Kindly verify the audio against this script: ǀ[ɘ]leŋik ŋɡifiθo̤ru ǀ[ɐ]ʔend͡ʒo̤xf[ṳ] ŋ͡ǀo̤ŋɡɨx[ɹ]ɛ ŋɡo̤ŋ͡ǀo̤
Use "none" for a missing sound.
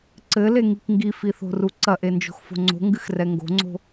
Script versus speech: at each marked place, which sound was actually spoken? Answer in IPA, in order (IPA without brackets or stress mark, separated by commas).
ɘ, ɐ, o̤, r